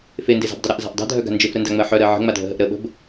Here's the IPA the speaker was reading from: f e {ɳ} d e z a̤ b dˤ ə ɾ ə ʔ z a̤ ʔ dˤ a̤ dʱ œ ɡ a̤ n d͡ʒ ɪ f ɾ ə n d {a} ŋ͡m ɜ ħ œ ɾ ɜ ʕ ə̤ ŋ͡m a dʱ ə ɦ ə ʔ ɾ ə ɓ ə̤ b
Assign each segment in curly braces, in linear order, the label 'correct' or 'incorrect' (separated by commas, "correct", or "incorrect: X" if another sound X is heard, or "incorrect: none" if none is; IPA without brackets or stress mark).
incorrect: n, correct